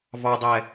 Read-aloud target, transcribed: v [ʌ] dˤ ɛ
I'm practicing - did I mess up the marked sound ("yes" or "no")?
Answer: yes